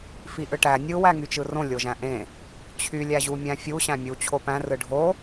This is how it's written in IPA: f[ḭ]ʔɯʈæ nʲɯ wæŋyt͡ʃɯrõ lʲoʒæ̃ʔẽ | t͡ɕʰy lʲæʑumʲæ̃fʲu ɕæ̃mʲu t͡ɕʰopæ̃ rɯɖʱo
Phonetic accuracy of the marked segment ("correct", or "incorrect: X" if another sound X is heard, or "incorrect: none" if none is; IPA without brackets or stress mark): incorrect: i